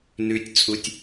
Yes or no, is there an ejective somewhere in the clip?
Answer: yes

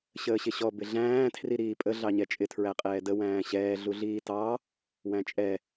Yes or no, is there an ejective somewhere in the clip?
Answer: yes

